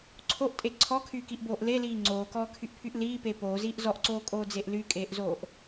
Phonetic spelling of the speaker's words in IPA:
ǀʰ o ʔ tʼ e ǀʰ ɔ kʰ yː k i ʔ b oː ʔ l e l iː ŋ͡ǀ oː k ɔː kʰ y ʔ pʰ y ʔ l iː p e p oː z iː ʔ z ɔ ʔ ǀ oː kʼ oː d͡z e ʔ l y kʼ eː ʔ z oː ʔ

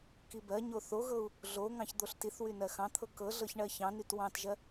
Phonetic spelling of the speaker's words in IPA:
k i b ɜ ɲ o θ o ɣ ɤ u̯ | ɮ o ŋ ɑ̃ ç d̪ o ɬ t i θ w y n ɜ x ɑ̃ t̪ʰ ɤ k ɤ ɮ ɤ ç ɳ ɜ ç ɑ̃ n y t w ɑ̃ t ʒ ɜ

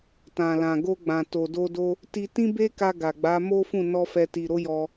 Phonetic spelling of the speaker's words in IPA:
t ã˨ l ã˨ ɡ o˧ ɡ͡b ã˨ t o˨ d o˧ d o˦ | t i˧ t ĩ˦ b e˦ k a˧ ɡ a˨ ɡ͡b a˨˦ m o˦ f ũ˦˨ n ɔ˧ f ɛ˧ t i˨ ɾ o˨˦ j ɔ˧

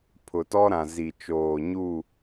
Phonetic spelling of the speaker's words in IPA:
pʰ ʊ˨ t ɔ˦ ɾ ã˨ z i˨ t͡ʃ oː˨ ɲ u˦˨

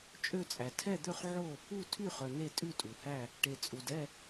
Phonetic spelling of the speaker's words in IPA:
t͡ʃʼ ø˥˧ t͡sʼ æ˨ tʰ ɛ˥˧ d̪ ø˥˧ χ ʕ o˥˧ | u˥˧ tʰ y˥˧ χ œ˨ n e˥˧ tʼ ʉ˥˧ tʼ u˨ h æ˥˧ | ʈ e˨ t͡sʼ u˨ d ɛ˥˧

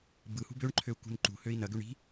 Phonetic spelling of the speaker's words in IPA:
b ɯ h ṳ b ø ɳ ǃʰ ø u̯ k ṳ n ǃ ṳ h ø i̯ n ɐ ɡ ø ɳ i̤

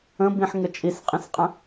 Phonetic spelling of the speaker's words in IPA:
ə̃ b ĩ ħ ŋ ə t͡ʃʼ i s qʼ ĩ s qʼ ə̃

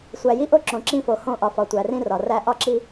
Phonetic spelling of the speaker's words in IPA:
sʷ æ˨ j i˦ ʔ o˦ ǁ õ˨ ǁ ĩ˦˨ f o˨ h õ˦˨ ʔ ɒ˨ f ɒ˨ tʷ æ˨ r ĩ˦ r ɒ˨ r æ˦ ʔ ɒ˦ ǁ i˦

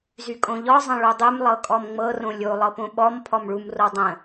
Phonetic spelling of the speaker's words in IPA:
z y kʼ õ ʎ ɔ zˤ ə̃ ɭ u dˤ y m lˠ ɤ kʼ ɔ m ŋ͡m ɤ r õ lʲ o lˠ ɤ p õ ɓ ɔ m pʰ ɔ m ɭ u m r o dˤ ə̃

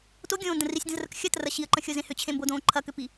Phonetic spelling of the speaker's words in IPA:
t o ɡʲ õː n d ə̃ r i sʲ d ə̃ z r ə k xʲ ɐ t r ɐ ɕ i ə̯ ǃ ə̃ xʲ o z ẽ h ʏ t͡ɕʰ ẽ m b o d õː ǃʰ ɐ k ʏ p i

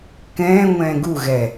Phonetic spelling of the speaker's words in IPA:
k ɛ̃ː ŋʷ ɛ̃ː ɡ u ɣ ɛ

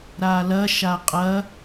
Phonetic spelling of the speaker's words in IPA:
ɾ a l ɐ ʃ a qʼ ɐ

